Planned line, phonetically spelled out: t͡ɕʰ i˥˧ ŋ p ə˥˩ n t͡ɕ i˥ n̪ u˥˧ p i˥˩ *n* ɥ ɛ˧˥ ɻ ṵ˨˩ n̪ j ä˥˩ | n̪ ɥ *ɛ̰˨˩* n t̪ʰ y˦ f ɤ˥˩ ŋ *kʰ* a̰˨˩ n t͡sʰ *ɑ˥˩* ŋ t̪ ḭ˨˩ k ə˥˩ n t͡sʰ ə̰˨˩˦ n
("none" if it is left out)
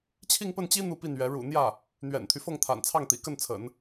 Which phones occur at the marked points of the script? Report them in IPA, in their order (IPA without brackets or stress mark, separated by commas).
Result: n, ɛ̰˨˩, t̪ʰ, ɑ˥˩